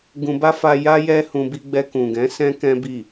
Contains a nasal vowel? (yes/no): yes